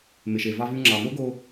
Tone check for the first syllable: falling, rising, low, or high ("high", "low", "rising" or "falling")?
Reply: low